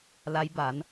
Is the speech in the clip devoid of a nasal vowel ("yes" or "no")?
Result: yes